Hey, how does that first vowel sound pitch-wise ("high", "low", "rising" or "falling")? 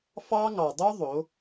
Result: high